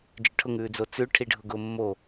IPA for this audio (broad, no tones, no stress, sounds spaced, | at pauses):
d͡ʒ ʏ ʈʰ ʊ ŋ ʉː d͡z o t͡s ʉ ʈʰ i ɖʱ ʊ ɡ ʊː mː o